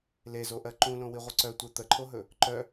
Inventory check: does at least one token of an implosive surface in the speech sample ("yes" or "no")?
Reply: no